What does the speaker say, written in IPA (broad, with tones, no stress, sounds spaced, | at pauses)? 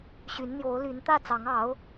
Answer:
ɕ y˧˥ n n̪ j o˧˥ ʊ̯ l y˧˥ n t̪ ä˥˩ t͡s ɑ˧˥ ŋ ɑ˧˥ ʊ̯